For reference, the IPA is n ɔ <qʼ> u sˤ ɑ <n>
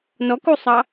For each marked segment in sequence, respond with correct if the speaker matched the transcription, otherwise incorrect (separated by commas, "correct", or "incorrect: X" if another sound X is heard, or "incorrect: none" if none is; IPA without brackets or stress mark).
incorrect: k, incorrect: none